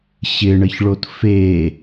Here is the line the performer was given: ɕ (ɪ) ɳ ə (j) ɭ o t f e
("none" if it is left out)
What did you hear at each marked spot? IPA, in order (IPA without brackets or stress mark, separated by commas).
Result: ɪ, ç